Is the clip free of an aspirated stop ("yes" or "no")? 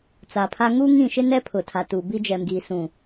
no